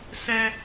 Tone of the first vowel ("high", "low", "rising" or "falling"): low